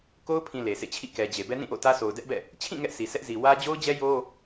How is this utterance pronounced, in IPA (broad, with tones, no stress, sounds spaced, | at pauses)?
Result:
k o˦ ʊ̯ pʰ ĩ˨ l e˨ sʰ ḛ˦˨ t͡ɕʰ ḭ˦˨ k ɛ˨ d͡ʑ e˨ b ɛ˦ n ĩ˦˨ ʔ o̰˦˨ t ä˦ s o˨ ʊ̯ d ɛ˦ ʔ b ɛ̰˦˨ | t͡ɕʰ ĩ˦˨ ŋ ɛ˦ ʔ sʰ i˨ sʰ ɛ˦ ʔ z i˨ w ä˦ d͡ʑ o˦ ʊ̯ d͡ʑ ɛ˦ j o˦